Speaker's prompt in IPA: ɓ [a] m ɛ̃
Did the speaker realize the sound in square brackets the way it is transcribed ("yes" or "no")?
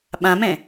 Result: no